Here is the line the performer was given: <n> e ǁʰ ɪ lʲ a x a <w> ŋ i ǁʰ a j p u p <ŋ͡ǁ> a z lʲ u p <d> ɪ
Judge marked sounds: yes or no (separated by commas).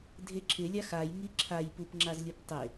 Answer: no, no, yes, no